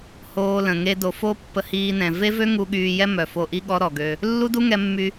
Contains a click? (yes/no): no